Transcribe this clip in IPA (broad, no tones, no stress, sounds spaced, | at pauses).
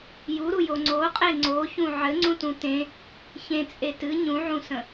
j u ɾ u j o ŋ͡ǀ o qʼ e ŋ͡ǀ o ç ũ ʕ ɘ ŋ͡ǀ ũ t ũ t ẽ | ç ẽ t͡sʼ e t ɨ ɲ ũ ʕ ũ s ə̃